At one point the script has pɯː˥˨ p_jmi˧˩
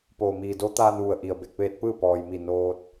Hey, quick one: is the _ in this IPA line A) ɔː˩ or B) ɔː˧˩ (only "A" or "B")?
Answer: A